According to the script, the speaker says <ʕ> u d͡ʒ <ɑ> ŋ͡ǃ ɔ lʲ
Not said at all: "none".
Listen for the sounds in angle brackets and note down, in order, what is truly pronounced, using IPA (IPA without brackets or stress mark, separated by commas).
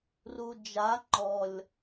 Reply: r, a